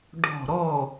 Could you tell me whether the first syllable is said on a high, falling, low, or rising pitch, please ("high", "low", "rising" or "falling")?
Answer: falling